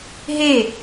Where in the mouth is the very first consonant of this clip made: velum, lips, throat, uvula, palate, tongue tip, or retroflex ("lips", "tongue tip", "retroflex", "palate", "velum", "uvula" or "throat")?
throat